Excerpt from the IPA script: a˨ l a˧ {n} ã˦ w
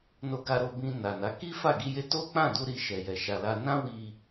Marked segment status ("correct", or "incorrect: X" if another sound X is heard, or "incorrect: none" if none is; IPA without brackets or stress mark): correct